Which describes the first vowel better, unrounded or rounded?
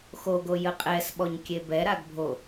rounded